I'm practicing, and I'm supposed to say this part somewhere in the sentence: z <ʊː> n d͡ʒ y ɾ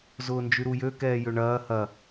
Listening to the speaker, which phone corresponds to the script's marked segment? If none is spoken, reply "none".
ʊː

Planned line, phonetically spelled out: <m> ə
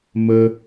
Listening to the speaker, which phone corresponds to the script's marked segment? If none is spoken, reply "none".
m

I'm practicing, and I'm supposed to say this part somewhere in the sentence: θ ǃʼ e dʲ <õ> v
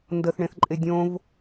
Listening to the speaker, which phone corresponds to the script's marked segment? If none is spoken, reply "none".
õ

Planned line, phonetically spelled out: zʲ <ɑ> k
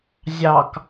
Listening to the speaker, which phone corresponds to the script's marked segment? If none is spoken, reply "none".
ɑ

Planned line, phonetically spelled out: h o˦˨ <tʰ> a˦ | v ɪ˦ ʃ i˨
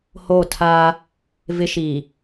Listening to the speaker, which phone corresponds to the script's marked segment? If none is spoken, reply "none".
tʰ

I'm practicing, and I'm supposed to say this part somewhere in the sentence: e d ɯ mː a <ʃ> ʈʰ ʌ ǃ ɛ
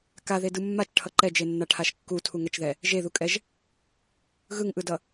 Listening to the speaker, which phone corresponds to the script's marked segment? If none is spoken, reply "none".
t͡ʃ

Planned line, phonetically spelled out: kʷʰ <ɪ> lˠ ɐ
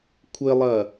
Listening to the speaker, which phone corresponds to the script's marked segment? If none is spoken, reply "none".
ɪ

